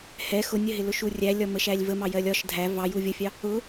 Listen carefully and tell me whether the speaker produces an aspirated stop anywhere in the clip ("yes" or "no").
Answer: no